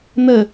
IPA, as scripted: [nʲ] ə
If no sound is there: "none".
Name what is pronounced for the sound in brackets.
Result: n̪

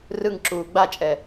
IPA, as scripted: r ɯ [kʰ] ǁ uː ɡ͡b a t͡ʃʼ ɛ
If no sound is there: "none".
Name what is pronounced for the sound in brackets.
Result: ŋ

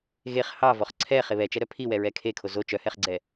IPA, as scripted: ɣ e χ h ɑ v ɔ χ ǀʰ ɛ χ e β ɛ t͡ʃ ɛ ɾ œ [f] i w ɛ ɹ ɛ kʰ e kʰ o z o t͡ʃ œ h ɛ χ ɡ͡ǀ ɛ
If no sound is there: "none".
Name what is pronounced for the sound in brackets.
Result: pʰ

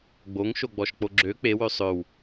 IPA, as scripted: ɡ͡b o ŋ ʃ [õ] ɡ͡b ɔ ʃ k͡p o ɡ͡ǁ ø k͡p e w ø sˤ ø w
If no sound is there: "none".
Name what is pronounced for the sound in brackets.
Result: o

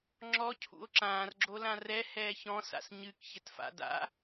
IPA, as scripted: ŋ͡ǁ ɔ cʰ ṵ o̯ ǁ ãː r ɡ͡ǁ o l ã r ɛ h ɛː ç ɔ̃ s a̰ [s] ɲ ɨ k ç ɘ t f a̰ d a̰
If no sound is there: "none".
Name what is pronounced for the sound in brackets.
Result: s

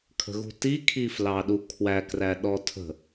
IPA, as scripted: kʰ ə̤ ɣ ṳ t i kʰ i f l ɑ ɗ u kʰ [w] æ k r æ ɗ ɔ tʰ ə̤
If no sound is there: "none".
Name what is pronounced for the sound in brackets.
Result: w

